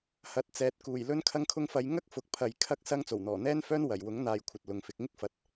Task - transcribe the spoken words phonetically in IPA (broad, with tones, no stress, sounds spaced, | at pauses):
h ɐ˨ t̚ t͡s ɛː˨ t̚ k uː˨˩ j l ɵ˥ n kʰ ɐ˧ ŋ kʰ ʊ˧ ŋ f ɐ˨˧ j ŋ ɐ˥ k̚ f ʊ˨ k̚ pʰ ɐ˨ j kʰ ɐ˥ k̚ s ɐ˥ ŋ t͡s o˨˩ w n̪ ɔː˨˩ n̪ ɛː˥ n f œː˥ n w ɐ˨˩ j w ʊ˨˥ ŋ n̪ aː˨˧ j kʷʰ ɐ˨ t̚ l ʊ˨ ŋ f ɪ˧ k̚ ŋ ɪ˥ k̚ f ɐ˨ t̚